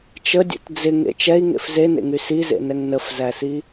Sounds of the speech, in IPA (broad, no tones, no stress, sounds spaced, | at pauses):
t͡ʃ ə dʲ ɛ̰ t d͡z ɪ ŋ ḛ t͡ʃ ɛ i̯ ŋ ḛ f z e n ḛ ŋ y s i z ḛ n ɛ ŋ n ə f z æ s i